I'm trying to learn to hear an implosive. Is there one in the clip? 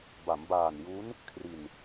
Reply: no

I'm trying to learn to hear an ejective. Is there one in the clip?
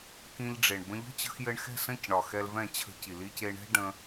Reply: no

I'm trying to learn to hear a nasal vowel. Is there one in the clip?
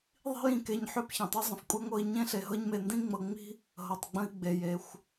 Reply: yes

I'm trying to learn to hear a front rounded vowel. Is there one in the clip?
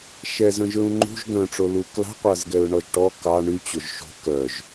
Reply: yes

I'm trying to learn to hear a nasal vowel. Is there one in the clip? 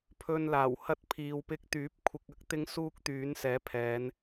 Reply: no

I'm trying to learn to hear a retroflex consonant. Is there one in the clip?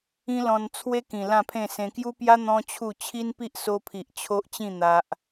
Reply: no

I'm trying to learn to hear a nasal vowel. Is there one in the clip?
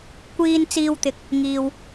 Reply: no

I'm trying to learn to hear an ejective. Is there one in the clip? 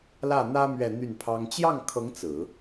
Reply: no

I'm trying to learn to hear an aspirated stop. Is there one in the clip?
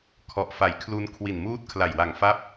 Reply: yes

